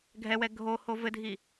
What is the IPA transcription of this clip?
ɡʱ ɛ w ɛ ɡʱ o h o v ɘ dʱ i

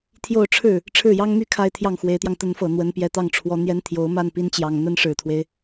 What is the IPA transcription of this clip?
t̪ʰ j o˥˧ ʊ̯ ʈ͡ʂʰ ɻ̩˥˩ | ʈ͡ʂʰ ɻ̩˥˩ j ɑ˥ ŋ m y˥˧ kʰ a˥˧ ɪ̯ t̪ʰ j ɑ˥˩ ŋ x w e˧˥ ɪ̯ t̪ j ɑ˧ ŋ t̪ ə˧˥ n f ɤ˨˩ n̪ w ə˧˥ n p j ɛ˧˥ t̪ ɑ˥˩ ŋ ʈ͡ʂʰ w ɔ˧˥ n̪ j ɛ˥ n t̪ʰ j o˧˥ ʊ̯ m a˥˩ n p i˧˥ n t͡ɕ j ɑ˨˩ ŋ n̪ ə˥ n ʂ ɻ̩˨˩ t̪ʰ w e˦ ɪ̯

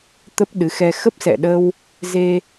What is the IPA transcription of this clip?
t̪ ə˦˥ p̚ ɗ ɨ˨˦ x ɛ˧ x ə˦˥ p̚ s ɛ̰˧˨ ɗ ə˧ w | z e˧

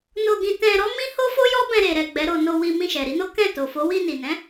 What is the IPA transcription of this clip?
n o˧ ɡ ĩ˧ t ɛ̃˧ ɾ ɔ˦ m ĩ˦ h o˦ f o˦ j ɔ˦ b ɛ̃˧ ɾ e˨ ɾ ɛ˨ ɡ͡b ɛ˨˦ ɾ o˧ n o˧ w i˧ m ĩ˧ ʃ ɛ˨ ɾ i˨˦ n o˦ k ɛ̃˦˨ t o˨ f o˨˦ w i˧ n i˨ n ɛ̃˨˦

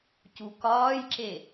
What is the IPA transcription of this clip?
c u k ɒː j ǁ e

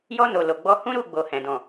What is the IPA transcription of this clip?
j ɔ˧ n o˨ l o˨ ɡ͡b ɔ˧ h ũ˦ ɾ u˦˨ ɡ͡b o˨ h ɛ̃˨ d ɔ̃˨

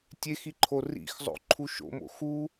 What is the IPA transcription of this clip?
tʲ e x i ǃʰ o r ḭ x zˤ o̰ ǃʰ u ʃ o̰ m o̰ x u

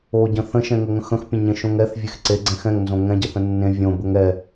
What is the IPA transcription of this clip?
o ɟ ə̃ θ ə̃ ʃ ɛ̃ ŋ ə ŋ ə̃ x ə̃ x pʲ ə̃ ɲ ẽ ʃ õ ŋ ɛ θ vʲ e x ǀ e ɡ͡ǀ ɛ̃ x ɛ̃ ŋ n z õ ŋ ɛ̃ ɟ ɛ θ ə̃ nː ẽ vʲ õ b ə ŋ ɛ

